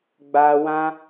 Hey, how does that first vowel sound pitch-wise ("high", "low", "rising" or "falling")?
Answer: high